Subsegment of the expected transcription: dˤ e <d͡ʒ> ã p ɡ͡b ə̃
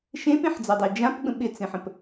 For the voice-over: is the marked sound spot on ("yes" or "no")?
yes